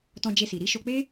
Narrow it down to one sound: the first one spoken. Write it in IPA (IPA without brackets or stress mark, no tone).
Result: t